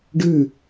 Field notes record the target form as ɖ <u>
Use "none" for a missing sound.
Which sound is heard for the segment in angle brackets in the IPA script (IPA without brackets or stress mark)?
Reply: ʉ